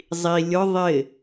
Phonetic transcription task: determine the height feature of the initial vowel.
high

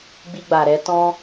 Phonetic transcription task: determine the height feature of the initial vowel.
high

